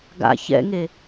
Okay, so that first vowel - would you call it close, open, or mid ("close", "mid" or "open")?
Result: open